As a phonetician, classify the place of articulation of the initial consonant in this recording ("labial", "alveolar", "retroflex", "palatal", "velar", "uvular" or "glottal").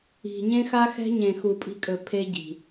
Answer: palatal